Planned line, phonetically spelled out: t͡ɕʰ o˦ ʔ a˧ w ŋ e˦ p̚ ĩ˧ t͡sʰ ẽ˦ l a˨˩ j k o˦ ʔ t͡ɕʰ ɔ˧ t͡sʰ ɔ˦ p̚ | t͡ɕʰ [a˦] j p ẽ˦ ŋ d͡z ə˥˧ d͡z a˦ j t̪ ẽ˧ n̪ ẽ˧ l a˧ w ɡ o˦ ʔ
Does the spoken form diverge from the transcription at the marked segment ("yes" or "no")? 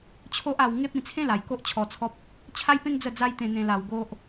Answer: no